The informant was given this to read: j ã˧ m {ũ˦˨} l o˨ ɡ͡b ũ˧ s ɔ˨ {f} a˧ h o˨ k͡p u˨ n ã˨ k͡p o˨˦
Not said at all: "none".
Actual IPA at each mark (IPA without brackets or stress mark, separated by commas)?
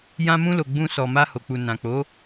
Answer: ũ˧, m